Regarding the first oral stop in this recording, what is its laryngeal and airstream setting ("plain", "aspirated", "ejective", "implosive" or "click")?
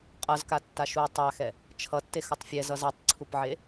ejective